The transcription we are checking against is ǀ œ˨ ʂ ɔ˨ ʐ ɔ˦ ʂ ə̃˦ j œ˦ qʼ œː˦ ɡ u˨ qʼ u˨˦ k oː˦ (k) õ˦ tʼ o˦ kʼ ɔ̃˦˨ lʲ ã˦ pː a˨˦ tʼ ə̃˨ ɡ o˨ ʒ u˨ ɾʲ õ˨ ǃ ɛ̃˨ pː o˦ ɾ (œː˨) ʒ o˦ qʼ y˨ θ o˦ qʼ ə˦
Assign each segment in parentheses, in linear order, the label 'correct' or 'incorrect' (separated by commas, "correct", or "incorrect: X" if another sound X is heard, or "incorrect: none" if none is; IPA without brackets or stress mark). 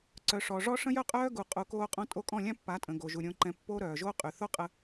incorrect: qʼ, correct